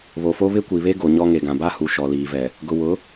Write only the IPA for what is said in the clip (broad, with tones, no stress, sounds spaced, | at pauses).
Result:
β o˨ f o˦ β ɪ˦ kʷ i˨ β e˦ ɡ o˨ ɲ ɔ˦ ŋ e˨ ɡ ã˨ b a˦ h u˨ ʃ ɔ˨ l iː˨ v ɛ˨ | ɡ ʊ˨ w ʊ˨˦